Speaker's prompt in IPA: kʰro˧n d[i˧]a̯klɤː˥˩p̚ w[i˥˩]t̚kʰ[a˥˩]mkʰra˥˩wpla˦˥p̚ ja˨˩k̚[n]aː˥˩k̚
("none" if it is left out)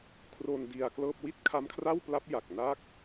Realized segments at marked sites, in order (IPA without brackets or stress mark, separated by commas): i˧, i˥˩, a˦˥, n